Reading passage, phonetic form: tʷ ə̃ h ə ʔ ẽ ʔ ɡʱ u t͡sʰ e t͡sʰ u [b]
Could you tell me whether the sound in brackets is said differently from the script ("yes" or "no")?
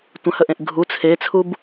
no